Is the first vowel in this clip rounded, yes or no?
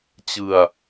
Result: no